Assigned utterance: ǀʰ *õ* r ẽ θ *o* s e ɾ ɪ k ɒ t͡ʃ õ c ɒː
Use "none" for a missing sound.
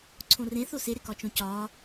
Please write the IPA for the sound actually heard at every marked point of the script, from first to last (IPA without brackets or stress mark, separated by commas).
õ, o